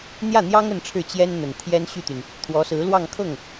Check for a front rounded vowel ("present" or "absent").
present